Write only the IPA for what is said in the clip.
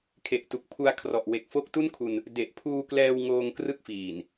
kʰ e˨˩ ʔ t u˨˩ k̚ pʰ u˧ a̯ kʰ r ɔ˨˩ ʔ w e˨˩ k̚ f o˦˥ k̚ t u˥˩ n kʰ u˧ n | d e˨˩ ʔ pʰ uː˧ k l ɛː˧ w ŋ oː˧ ŋ k r ɯ˦˥ k̚ f iː˨˩ n

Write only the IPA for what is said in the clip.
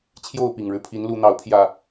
t͡ɕʰ j o˥˨ ʊ̯ p i˨˩ ŋ ɻ ɻ̩˦ pʰ i˨˦ n l u˨˦ n̪ ɑ˨˦ ʊ̯ pʰ j ä˨˩

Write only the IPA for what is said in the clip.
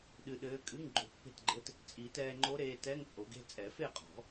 ɗ ɨ˧ ɗ ɘː˧˥ kʼ ɨ˧˥˧ ŋ ɡ͡ǃ o˧ pː e̤˥˨ t ɡ͡ǃ ɘ˧˥˧ t | t͡sʼ i˨˩˦ t ɛː˧ ŋ͡ǃ o˧˥ ɾ eː˧ t ɛ˧˥˧ ŋ t͡sʼ o˨˩˦ ɡ e̤˥˨ t͡sʼ ɛ˨˩˦ f e˥˨ qʼ ɔ̤˨˩˦

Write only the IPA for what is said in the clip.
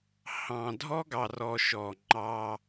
h ɑ̃˨ dʱ ɔ˦ ɡ ɑ˨ r ɔ˦ ʃ ɔ˦˨ ŋ͡ǃ ɑ˦

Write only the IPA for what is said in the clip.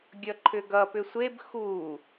ɡʲ ʌ ǃʰ ʏ ɡ ʌ p ʏ sʷ e b x u

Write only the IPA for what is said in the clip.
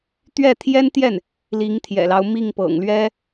t̪ ɥ ɛ˥˩ t̪ʰ j ɛ˥ n t̪ j ɛ˥˩ n | l i˧˥ ŋ t̪ʰ j ɛ̰˨˩ l ɑ˦ ʊ̯ m i˥˩ ŋ p ɤ̰˨˩ ŋ l ɥ ɛ˥

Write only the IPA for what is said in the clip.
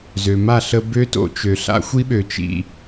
z ø˩ m a˥˩ ɬ ə˧ b ø˥ t o̰˧ t͡ʃ ø˩ ɬ a̰˥ xʷ i˥ ɓ ø˩ t͡ʃ ḭ˥˩

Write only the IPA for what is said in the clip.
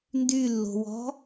n d y lː o̤ w ɔ̤

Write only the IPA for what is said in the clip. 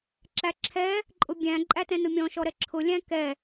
ǁ æ ǁʰ ɛ | ǃʼ ʊ bʲ æ̃ ǃʼ æ t ɛ̃ n ʊ mʲ ɔ̃ ʃ ɔ ɾ ɛ ǁʰ ʊ lʲ æ̃ k ɛ

